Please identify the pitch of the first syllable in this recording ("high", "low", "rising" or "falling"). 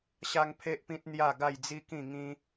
high